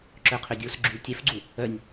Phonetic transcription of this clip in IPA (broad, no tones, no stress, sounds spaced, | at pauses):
ǁ œ qʰ ø dʲ o s ɡ͡ǁ y l tʲ ɛ f ɡ͡ǀ u | œ nʲ